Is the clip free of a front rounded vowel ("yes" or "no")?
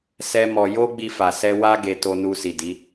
yes